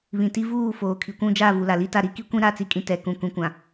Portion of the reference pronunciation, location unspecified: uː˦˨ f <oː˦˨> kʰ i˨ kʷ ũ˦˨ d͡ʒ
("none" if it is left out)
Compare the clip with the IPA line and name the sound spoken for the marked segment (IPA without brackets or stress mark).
oː˨